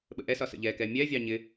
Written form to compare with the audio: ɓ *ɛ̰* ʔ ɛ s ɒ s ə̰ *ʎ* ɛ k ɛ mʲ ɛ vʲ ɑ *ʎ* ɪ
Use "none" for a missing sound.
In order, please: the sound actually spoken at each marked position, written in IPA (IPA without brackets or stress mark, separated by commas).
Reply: ə̰, ʎ, ɲ